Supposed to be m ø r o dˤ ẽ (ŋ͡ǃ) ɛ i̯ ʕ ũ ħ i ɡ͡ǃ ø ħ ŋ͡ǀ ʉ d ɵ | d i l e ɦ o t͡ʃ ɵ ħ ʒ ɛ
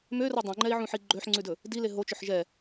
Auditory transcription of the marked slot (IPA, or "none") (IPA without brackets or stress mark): ŋ͡ǃ